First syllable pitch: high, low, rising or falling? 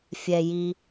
low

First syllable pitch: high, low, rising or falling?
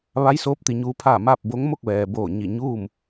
rising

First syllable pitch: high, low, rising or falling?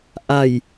low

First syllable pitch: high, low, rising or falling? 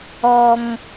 low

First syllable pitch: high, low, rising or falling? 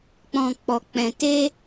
low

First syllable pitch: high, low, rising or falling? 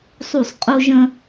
falling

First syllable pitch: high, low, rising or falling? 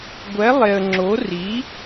rising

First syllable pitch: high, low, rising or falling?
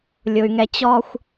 high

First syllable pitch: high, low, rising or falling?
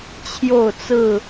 falling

